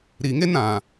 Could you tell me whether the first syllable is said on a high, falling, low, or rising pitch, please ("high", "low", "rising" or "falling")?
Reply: low